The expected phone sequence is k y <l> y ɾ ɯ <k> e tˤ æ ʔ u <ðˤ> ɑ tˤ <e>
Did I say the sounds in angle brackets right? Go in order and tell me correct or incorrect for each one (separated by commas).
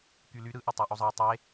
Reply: correct, incorrect, incorrect, correct